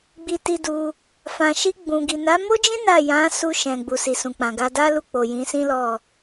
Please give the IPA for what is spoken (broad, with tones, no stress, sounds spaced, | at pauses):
ɡ͡b i˧ t i˧ d u˧ | f ã˨ ʃ i˧ ɡ͡b ũ˨ ɡ i˨ n a˨˦ m o˦ d͡ʒ ĩ˦ n a˦˨ j ã˨˦ s u˧ ʃ ɛ̃˨ ɡ͡b u˨ s i˨ s ũ˨ k͡p ã˨ ɡ a˧ d a˦ l u˦˨ k͡p o˨ j ĩ˨˦ s ĩ˦ l ɔ˦˨